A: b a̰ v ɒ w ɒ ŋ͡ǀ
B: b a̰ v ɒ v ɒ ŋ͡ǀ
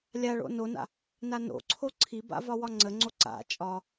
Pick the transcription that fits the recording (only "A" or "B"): A